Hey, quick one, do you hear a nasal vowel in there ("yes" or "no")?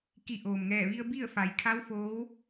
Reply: no